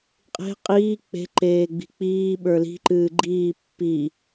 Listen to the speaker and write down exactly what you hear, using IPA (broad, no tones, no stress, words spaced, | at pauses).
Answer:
qʼe̤ qʼiː k͡pe̤ ǃeːɡ͡bi̤k͡piː ɓə˞li̤ ǃɨːɡ͡ǃiː pːi